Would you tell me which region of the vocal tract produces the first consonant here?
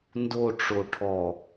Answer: tongue tip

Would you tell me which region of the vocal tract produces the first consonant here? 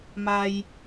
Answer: lips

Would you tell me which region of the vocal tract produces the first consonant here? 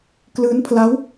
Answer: velum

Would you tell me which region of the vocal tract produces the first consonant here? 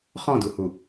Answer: uvula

